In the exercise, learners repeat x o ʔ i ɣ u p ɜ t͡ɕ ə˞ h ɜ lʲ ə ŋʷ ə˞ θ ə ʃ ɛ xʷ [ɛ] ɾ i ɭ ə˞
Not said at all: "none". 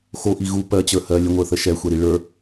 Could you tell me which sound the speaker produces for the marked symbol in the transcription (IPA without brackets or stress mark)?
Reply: ɛ